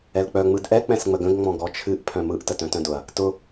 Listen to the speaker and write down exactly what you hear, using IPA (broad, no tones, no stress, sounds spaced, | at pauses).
ɛ l k͡p œ ŋ͡m ɯ d ʔ ɛ k͡p ɛ̃ s ŋ͡m ə ɡ ə̃ ɡ ŋ͡m ɔ̃ ɡ ɔ t͡ʃʰ ɨ ʔ pʰ œ̃ m ɯ ʔ t ə t œ̃ t œ̃ d ʊ ɐ̯ | t ʊ